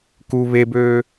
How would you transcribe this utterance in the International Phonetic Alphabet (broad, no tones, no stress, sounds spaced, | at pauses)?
k u β e b øː